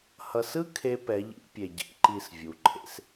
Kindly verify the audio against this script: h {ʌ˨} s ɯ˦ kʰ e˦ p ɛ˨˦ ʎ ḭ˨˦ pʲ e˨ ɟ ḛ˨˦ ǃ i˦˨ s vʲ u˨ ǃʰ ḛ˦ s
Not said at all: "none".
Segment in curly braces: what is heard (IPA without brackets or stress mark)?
ʌ˨